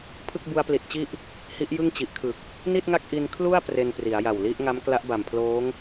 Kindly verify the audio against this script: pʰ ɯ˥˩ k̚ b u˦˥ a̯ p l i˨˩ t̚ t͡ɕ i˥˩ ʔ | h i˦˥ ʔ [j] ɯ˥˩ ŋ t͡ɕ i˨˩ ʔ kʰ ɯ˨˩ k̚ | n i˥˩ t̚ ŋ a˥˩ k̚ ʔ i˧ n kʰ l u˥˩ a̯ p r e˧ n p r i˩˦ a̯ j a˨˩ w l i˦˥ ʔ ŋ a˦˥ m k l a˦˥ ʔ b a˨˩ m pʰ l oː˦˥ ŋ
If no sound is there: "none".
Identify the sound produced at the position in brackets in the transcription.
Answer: j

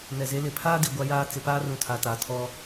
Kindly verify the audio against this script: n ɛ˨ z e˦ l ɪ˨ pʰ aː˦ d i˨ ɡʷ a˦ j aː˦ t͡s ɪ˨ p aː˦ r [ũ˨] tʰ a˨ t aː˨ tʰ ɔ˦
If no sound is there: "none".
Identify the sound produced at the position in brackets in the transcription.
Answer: ũ˨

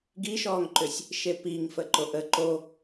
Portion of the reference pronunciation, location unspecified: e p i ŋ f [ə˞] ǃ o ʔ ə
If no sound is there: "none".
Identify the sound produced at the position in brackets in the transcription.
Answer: ə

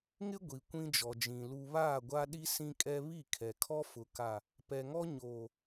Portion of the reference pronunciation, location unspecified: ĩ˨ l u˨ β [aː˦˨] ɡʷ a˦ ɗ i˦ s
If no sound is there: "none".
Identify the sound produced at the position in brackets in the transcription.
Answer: aː˦˨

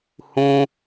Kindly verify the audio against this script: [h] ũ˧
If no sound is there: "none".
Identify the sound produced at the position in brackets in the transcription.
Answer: h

